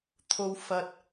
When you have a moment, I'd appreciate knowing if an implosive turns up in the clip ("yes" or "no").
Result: no